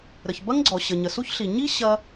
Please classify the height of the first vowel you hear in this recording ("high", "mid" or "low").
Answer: mid